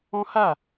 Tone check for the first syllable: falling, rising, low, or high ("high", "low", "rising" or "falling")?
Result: high